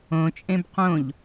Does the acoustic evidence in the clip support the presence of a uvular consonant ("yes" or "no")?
yes